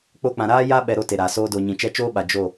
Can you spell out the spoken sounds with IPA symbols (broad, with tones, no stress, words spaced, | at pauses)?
k͡po˧k͡pã˨ɾaː˦ ja˦ɓɛ˨ ɾo˦te˨ɾaː˨ soː˧do˨ɲĩ˨t͡ʃɛ˦ t͡ʃoː˦ɓa˨ d͡ʒo˦˨